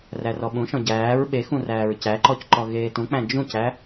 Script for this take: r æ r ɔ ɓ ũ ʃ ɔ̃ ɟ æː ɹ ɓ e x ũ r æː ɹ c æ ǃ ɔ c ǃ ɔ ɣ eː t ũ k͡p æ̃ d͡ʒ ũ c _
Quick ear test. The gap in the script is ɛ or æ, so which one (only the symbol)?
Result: æ